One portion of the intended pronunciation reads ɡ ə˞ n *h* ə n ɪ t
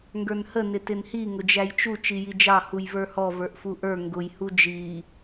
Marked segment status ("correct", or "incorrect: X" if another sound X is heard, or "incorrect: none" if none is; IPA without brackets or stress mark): correct